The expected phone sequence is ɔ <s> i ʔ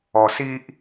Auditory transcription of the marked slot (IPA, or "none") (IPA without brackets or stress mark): s